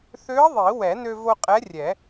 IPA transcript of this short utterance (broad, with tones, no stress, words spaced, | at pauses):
θø˧˥ə̯ðˤi˨˩˦ wɛ˨˩˦nø˧vo˧ qʼɛ˧˥rʲɛ˨˩˦